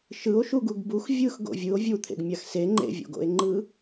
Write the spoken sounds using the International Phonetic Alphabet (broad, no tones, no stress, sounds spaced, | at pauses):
ʃ ɯ o̯ ʃ u ɡ u ɡ b u x vʲ ɯ x ɡ o̰ vʲ ɯ o̯ vʲ u t̪ʰ ḛ ɡ mʲ a x s e ŋ͡ǃ ḛ vʲ o̰ ɡ o̰ e̯ ŋ͡ǃ ɯ